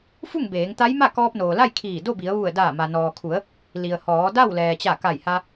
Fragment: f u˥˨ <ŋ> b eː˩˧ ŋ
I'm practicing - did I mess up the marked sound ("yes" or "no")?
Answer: no